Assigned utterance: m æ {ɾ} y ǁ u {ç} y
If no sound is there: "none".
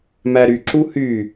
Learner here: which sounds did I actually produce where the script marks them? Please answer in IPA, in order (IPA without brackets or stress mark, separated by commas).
ɾ, h